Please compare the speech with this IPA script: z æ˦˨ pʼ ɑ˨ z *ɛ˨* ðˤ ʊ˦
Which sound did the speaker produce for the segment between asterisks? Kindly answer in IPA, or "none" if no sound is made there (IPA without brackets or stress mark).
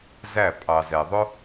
ɛ˨